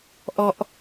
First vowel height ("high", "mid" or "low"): mid